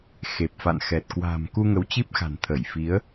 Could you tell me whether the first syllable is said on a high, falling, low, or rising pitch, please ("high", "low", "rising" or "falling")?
low